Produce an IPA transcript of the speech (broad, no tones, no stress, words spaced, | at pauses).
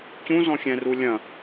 cũzɔ̃xʲɛ̃ru lʲɐ̃